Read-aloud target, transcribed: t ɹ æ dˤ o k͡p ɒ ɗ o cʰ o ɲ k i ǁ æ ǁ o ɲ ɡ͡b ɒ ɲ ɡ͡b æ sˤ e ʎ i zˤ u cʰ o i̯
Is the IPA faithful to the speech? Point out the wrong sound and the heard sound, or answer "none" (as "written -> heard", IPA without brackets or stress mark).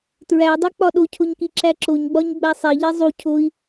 none